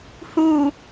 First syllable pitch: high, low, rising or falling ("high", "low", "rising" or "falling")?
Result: low